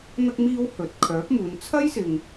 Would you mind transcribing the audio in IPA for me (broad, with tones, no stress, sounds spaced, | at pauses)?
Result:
n̪ ɐ˧ k̚ m iː˧ w h ɵ˨ t̚ kʰ œː˨˥ p̚ m uː˨˧ n t͡sʰ ɐ˥ j s ɪ˨ ŋ